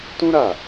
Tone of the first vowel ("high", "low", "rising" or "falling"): high